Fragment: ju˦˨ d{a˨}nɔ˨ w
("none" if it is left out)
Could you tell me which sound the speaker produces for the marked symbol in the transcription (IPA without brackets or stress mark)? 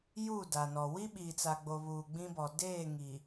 a˨